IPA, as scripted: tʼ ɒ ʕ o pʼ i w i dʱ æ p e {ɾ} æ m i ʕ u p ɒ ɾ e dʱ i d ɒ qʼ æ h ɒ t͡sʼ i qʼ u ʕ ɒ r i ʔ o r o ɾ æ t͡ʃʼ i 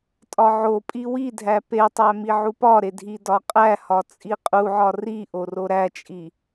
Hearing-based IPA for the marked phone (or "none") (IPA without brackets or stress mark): tˤ